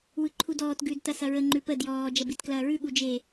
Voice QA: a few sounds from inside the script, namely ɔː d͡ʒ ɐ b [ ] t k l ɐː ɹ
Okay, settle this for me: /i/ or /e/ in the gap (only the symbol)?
i